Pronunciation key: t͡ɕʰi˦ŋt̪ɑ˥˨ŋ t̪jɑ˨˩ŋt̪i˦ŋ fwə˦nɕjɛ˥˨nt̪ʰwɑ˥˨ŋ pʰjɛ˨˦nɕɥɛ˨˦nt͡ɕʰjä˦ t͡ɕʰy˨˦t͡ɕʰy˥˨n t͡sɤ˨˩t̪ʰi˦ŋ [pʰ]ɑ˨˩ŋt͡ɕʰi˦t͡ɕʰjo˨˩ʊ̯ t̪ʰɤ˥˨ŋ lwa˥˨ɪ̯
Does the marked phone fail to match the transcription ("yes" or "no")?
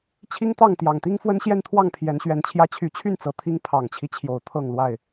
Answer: no